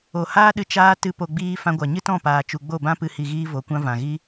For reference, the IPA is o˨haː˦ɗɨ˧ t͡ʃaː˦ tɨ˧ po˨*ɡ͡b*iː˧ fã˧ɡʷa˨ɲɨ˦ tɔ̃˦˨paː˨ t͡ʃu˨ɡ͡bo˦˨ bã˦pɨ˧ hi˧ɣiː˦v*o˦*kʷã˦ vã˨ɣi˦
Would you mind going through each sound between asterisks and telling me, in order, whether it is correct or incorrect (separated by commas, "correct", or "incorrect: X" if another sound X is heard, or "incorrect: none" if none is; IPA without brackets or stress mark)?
correct, incorrect: o˨˦